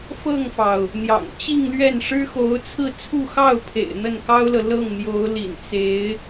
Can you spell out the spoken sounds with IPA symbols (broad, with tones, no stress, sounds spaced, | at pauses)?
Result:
f ɤ˥˩ ŋ f ɑ˩ ʊ̯ | n̪ j ɑ̰˨˩ ŋ t͡ɕ i˥˧ ŋ l ɥ ɛ˥˩ n ʂ ɻ̩˥ x o˧˥ ʊ̯ t͡sʰ ɹ̩˥˧ t͡sʰ u˥˧ x ɑ˥˩ ʊ̯ pʰ ḛ˨˩ ɪ̯ n̪ ə˥˩ n k ɑ˥ ʊ̯ l ɤ˨ l ɤ˥˩ ŋ n̪ j o˧˥ ʊ̯ l ḭ˨˩ n t͡s e˧˥ ɪ̯